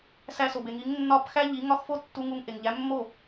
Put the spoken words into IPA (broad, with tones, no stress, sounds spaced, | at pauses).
s æ˧ s o˩ b e˩ ŋ i˩˥ ŋ nː ɒ˥˩ p x æ˥ ʎ i˩˥ ŋ ɒ˥ x f o˥ tː u˧ ŋ u˧ ŋ ʔ e˩ ŋ ʎ æ˩˥ mː o˥˩